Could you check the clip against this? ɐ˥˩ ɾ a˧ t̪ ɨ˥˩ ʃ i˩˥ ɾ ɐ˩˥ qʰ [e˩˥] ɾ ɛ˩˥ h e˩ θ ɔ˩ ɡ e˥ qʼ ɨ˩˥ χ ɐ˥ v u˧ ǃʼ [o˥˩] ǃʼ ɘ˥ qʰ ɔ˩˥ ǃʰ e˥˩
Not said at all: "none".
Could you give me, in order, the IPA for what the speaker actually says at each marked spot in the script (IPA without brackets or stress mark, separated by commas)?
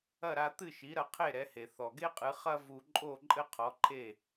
e˥˩, o˥˩